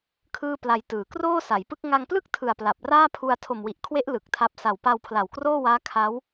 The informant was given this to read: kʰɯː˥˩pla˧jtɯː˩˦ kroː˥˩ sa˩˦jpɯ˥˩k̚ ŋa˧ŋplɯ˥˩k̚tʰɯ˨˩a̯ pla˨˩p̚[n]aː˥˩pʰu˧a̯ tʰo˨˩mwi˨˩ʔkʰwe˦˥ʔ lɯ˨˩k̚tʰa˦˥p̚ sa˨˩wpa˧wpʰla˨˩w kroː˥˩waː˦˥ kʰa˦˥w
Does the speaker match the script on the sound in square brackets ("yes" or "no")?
no